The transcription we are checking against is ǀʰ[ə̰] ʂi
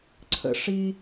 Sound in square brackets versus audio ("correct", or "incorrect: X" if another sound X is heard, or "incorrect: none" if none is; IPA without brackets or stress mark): correct